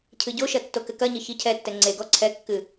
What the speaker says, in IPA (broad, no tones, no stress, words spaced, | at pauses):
cʰɨɟoʃɐ tːokɘkɐɲɘ çicʰɛtːɛ ŋ͡ǀeɡɔ ǀʰɛkːɨ